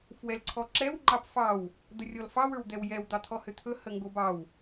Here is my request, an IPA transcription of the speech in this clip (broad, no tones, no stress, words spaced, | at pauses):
fwɛlǀʰɔǁɛw ŋ͡ǃɑpfɑw | d̪ərʲɔlfɑ wə˞wd̪ɛwjɛw d̪ɑt̪ʰɔhʏt̪ʰɵ həŋɡobɑw